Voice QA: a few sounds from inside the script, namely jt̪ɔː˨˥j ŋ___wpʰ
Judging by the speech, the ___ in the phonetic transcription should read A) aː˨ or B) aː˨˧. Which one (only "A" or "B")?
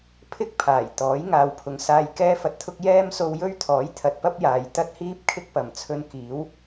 A